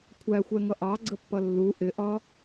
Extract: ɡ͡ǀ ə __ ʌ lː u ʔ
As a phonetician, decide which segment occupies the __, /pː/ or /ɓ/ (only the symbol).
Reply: pː